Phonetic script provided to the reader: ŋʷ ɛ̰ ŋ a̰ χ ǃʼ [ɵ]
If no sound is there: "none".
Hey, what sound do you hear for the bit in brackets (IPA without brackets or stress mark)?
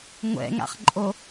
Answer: o